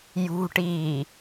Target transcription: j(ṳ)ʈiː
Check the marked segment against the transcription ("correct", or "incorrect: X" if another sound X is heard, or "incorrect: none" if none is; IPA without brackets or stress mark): correct